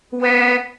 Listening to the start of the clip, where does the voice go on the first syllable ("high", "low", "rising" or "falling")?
high